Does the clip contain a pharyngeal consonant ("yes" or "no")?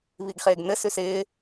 no